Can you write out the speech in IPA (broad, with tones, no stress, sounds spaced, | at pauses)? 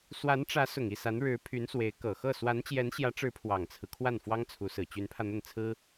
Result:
s w a˧˥ n ʈ͡ʂ ä˧˥ s ʊ˨˩ ŋ i˥˩ s a˧˥ n ɻ ɻ̩˧˥ pʰ y˧˥ n s w e˧˥ ɪ̯ k ɤ˨˩ x ɤ˥˩ s w a˧˥ n t͡ɕ j ɛ˧˥ n ɕ j ä˧˥ ʈ͡ʂ ɻ̩˧˥ pʰ w ɑ˨˩ ŋ t͡sʰ ɹ̩˦ kʰ w a˥˩ n f w ɑ˥ ŋ t͡sʰ u˧˥ s ɹ̩˨˩ t͡ɕ y˧˥ n pʰ ä˧ n̪ ə˥˩ n t͡sʰ ɹ̩˥